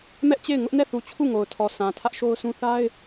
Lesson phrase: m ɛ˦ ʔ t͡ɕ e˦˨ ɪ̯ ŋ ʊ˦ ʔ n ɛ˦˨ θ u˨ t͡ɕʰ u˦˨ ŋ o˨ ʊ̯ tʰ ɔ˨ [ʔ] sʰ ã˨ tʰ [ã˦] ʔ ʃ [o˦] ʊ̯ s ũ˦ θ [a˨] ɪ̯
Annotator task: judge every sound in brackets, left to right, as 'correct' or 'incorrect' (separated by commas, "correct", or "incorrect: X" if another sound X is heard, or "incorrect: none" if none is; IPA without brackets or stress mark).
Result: incorrect: none, incorrect: ä˦, correct, incorrect: a˦